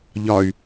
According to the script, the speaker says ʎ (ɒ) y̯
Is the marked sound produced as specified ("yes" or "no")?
yes